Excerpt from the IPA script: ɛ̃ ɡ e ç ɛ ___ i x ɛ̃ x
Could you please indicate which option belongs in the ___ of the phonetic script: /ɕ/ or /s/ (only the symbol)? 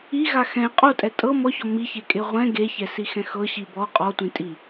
s